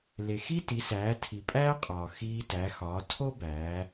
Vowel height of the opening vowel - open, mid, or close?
mid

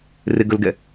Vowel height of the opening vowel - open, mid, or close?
close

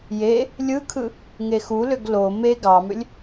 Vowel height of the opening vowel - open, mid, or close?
mid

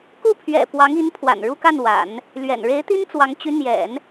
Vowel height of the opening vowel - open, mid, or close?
close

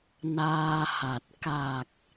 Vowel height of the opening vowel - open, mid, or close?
open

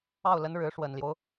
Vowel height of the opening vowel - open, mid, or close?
open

